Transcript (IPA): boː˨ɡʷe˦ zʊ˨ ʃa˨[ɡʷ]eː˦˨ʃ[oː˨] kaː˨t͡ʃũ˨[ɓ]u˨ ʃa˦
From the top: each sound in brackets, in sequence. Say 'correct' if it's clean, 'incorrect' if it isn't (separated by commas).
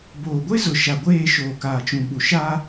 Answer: correct, correct, correct